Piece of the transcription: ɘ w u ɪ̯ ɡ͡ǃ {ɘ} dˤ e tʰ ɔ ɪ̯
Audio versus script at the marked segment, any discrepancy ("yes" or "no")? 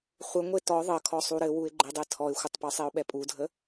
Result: no